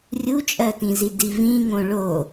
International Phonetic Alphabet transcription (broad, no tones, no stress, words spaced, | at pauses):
rʲut͡ʃʼɜtĩzi divĩŋõ ɭo